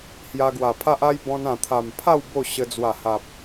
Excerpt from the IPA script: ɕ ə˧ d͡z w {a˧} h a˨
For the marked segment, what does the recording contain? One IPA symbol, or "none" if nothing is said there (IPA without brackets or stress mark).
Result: a˨˩